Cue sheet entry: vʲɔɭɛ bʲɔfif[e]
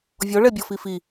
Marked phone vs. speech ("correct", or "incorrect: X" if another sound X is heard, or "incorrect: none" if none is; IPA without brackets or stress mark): incorrect: i